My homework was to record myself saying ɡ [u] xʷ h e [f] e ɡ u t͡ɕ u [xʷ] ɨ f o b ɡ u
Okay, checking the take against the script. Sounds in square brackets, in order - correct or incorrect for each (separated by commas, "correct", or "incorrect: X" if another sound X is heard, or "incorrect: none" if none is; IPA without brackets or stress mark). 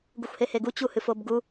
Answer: correct, incorrect: h, incorrect: h